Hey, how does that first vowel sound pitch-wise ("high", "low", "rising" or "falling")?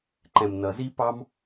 low